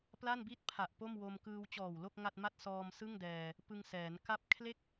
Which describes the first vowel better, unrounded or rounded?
unrounded